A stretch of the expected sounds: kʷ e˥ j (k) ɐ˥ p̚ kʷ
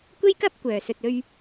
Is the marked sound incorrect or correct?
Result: correct